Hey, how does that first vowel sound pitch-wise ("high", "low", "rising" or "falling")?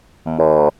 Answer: low